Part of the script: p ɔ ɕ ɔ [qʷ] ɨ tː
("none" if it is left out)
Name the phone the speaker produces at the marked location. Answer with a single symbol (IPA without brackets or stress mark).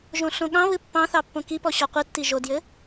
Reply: qʷ